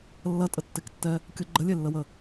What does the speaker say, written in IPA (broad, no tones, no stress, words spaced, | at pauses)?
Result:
lːɐtʼətːektːɛ | kʲʊ ɡ͡ǃəlʲelːəwə